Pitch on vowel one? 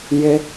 high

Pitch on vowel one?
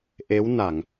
rising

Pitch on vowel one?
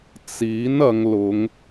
rising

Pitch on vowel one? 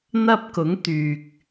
high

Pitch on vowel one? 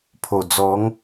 low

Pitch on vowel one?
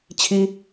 high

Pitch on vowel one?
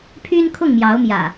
high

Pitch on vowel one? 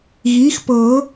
rising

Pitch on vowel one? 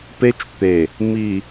high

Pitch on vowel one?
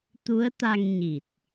rising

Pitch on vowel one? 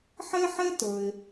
high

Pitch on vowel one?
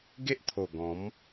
high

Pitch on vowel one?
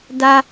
high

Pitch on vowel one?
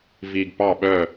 low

